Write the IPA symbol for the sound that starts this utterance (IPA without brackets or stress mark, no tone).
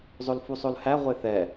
zˤ